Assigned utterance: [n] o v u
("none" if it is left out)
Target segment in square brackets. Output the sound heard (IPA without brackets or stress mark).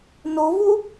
n